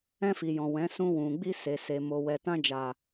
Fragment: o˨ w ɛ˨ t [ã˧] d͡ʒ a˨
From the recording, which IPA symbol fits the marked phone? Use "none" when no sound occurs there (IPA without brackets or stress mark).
ã˧